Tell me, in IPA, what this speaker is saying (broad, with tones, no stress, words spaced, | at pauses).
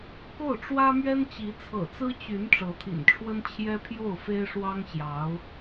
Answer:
ko˥˩ʊ̯ʈ͡ʂwä˥mɥɛ˥n t͡ɕi˧˥t͡sʰɤ̰˨˩t͡sɹ̩˥ t͡ɕy˧˥n ʈ͡ʂɤ˧˥t̪ʰḭ˨˩nʈ͡ʂʰwə˥n t͡ɕʰjɛ˥pʰjo˥˩ʊ̯fe˥ɪ̯ ʂwɑ˥ŋɕjɑ˧˥ʊ̯